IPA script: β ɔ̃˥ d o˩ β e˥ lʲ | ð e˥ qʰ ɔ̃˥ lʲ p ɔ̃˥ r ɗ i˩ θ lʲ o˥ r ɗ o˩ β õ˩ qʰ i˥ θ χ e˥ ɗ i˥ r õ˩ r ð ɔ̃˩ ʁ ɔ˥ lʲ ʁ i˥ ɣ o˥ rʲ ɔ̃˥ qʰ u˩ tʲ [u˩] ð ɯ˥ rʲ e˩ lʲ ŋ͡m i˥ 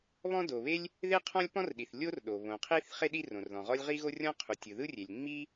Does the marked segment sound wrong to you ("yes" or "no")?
yes